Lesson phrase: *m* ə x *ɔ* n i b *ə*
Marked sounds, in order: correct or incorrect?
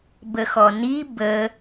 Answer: incorrect: b, correct, correct

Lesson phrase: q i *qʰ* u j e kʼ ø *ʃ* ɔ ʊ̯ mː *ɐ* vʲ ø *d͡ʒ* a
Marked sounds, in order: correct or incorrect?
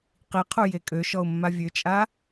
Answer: correct, correct, incorrect: a, incorrect: t͡ʃʼ

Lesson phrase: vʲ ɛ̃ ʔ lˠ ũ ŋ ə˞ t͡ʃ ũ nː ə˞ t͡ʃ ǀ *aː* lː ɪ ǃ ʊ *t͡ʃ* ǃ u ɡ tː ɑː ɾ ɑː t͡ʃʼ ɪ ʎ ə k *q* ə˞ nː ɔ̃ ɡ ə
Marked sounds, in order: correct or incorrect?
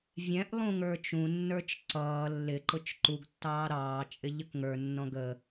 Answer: incorrect: ʌː, correct, incorrect: ŋ

